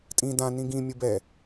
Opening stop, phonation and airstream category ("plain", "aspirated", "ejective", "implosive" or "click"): ejective